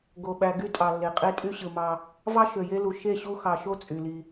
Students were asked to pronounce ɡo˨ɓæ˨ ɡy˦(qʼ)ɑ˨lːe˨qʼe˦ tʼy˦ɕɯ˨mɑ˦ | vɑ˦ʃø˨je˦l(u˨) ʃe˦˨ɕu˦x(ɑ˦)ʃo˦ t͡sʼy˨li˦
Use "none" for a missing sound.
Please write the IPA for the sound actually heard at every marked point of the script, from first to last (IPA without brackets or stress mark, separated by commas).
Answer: tʼ, u˨, ɑ˨